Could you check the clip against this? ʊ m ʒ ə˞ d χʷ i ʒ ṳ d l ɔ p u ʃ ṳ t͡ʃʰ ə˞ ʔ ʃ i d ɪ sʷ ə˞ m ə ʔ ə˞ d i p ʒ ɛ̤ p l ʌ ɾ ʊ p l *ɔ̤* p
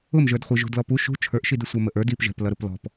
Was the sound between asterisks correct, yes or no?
yes